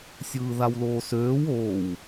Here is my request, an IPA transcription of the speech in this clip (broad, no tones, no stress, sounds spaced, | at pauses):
sʲ ɯː ð a w l oː s øː w oː w